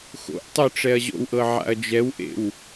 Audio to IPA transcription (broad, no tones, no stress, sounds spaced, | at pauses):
x o̰ ʔ tˤ œ ʈ͡ʂ ɛ ɐ̯ ʑ o̰ w ʔ ɤ ʕ a̰ ɐ̯ d͡ʒ ɛ w ʔ ḛ w